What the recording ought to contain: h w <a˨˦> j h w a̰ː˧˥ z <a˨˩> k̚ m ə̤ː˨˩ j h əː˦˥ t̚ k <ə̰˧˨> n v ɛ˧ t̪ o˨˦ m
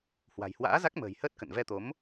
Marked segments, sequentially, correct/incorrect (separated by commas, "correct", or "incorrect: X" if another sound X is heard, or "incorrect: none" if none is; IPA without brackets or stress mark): incorrect: a̤˨˩, incorrect: a˦˥, correct